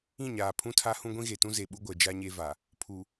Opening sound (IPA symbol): ĩ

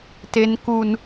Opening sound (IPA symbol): t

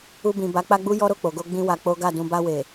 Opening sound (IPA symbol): u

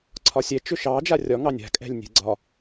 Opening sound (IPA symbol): ǀʰ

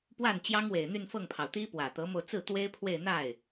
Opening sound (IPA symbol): p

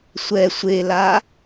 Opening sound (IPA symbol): sʷ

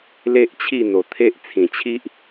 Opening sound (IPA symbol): l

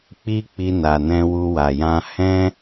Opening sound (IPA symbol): k͡p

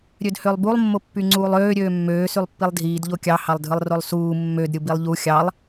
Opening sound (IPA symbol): ɾʲ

